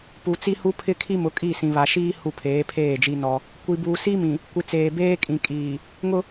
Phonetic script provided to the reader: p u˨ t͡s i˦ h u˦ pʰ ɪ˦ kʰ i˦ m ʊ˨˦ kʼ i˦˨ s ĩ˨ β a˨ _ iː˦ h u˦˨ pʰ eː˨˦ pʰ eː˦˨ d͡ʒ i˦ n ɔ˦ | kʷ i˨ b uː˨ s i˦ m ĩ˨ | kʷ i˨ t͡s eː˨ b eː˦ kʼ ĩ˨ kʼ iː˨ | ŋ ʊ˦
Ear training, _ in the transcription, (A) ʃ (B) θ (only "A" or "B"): A